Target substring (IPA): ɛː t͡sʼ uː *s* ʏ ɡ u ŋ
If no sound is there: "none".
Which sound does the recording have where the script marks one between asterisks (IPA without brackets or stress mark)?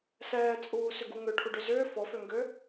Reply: s